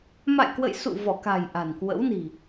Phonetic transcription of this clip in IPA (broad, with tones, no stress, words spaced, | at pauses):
ma̰˧˨jkwə̰˧˨jsṵ˧˨ vɔ˧˩ka̤˨˩j ʔa̤˨˩nkwə̰˧˥wni̤˨˩